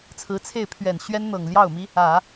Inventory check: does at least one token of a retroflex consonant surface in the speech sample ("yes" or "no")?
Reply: no